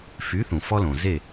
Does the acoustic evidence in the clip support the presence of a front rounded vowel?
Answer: yes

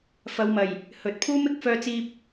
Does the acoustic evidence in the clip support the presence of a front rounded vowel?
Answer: yes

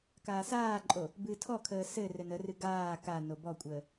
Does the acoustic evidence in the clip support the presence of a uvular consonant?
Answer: no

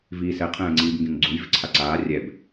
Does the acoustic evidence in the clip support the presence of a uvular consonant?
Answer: yes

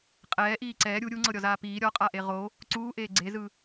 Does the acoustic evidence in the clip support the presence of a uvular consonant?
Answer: yes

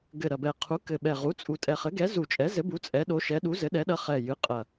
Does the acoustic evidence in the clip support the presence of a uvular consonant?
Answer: yes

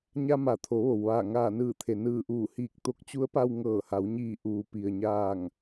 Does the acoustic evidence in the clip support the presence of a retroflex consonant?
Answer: no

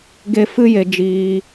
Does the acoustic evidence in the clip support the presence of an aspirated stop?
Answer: no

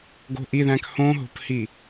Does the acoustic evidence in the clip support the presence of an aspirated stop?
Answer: no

